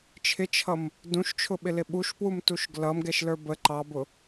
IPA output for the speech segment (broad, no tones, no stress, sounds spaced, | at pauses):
t͡ʃʰ ɪ t͡ʃʰ ʌ m | d ũ ʃ t͡ʃʰ ʊ ɓ ɪ l ɪ ɓ u ʃ p w u m t u ʃ ɡ l ʌ m ɡ ɛ ʃ l ə˞ b ə ǃ ɑ b ʊ